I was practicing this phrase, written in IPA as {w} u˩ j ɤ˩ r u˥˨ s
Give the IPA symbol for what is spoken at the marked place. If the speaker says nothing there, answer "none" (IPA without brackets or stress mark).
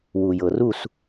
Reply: w